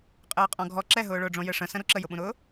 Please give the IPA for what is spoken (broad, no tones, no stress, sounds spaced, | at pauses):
qʼ ɘː qʼ ɔ̃ ɡʱ ɔ ǁ ɛ ɦ ʊː ɭ ʊː ɖ͡ʐ õ j ɘ ʂ ə̃ s ə̃ ɾ u ǁ ə j ʊ ɓ ũ ɾ ʊː